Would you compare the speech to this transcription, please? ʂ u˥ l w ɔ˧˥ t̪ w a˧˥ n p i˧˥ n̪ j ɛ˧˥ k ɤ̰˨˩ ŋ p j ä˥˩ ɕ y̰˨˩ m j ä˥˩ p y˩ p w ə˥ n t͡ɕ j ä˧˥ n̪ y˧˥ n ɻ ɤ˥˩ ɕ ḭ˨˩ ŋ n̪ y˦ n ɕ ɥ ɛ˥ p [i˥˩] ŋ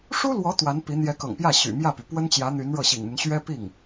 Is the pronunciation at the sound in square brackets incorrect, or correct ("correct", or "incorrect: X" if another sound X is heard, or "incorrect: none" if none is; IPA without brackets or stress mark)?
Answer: correct